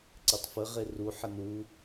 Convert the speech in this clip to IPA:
ǀ e tˤ f ə ʁ e r u ħ ə n u

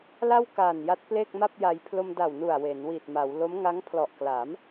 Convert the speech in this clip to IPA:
l a˥˩ w k aː˨˩ n j a˦˥ t̚ p l e˥˩ k̚ m a˥˩ p̚ j a˧ j pʰ l o˧ m d a˨˩ w n u˨˩ a̯ w e˩˦ n w i˨˩ t̚ m a˩˦ w l o˦˥ m ŋ a˦˥ ŋ pʰ l ɔ˨˩ ʔ k l a˩˦ m

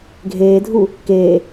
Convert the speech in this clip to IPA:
ɡʱ eː dʱ u | k eː

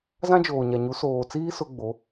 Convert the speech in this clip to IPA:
z ã˦ d͡ʒ oː˨ ɲ a˨ ɲ u˨˦ s oː˨ t͡s iː˦ s ʊ˦ ɡ͡b o˨˦

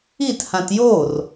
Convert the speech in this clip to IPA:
i t h ã t j o r

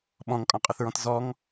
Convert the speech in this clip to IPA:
ɓ ɔ̃ ŋ kʼ ɔ̃ qʼ ə θ ɹ ɔ̃ t z ɔ ŋ

